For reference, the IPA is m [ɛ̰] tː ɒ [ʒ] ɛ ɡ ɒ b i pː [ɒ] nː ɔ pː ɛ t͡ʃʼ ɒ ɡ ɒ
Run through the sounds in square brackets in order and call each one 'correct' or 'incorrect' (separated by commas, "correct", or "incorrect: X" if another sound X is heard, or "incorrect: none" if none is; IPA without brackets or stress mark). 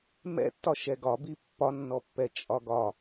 correct, incorrect: ʃ, correct